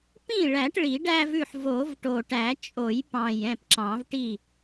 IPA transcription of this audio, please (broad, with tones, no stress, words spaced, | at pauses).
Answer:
pĩ˥˩ɭæ˨˩˦ʈ ɭi˨˩˦ɖæ˦vʉ˥˩ħ vo˨˩˦vʈo˨˩ʈæ˨˩˦ t͡ʃʼo˨˩˦jpɑ̃˨˩j ɛ̃˥˩pǁɑ̃˨˩˦vʈi˥˩